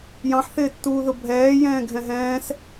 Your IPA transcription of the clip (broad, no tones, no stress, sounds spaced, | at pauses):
j ɑ̃ ħ θ ɪː tː uː ð ʊ bʱ ɛː j ɛ̃ː ɡʱ ɛ̃ ɦ ɛ̃ː s